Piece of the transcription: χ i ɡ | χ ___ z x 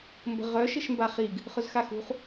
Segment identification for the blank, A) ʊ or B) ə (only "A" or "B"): A